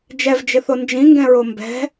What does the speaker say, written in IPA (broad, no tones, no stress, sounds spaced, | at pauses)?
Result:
d͡ʒ ɛ v d͡ʒ ɪ θ o n d͡ʒ ĩ ŋ ɡ ɛ̃ ɹ o m b ɛ̤